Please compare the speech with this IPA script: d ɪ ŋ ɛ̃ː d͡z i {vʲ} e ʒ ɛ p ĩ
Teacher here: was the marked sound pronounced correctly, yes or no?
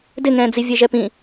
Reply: yes